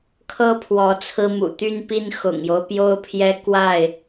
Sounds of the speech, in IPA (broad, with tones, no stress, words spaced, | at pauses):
kʰɤ˦pʰwɔ˨˦ t͡sʰɹ̩˦mṵ˨˩ t̪y˦npi˦n xʊ̰˨˩ŋjo˦ʊ̯pjo˦ʊ̯pʰjɛ˦ kwa˥˨ɪ̯